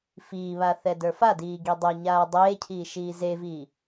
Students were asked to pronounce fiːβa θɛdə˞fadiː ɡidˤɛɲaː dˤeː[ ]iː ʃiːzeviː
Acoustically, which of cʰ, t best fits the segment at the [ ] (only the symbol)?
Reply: cʰ